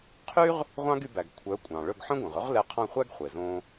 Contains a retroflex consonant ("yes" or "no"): yes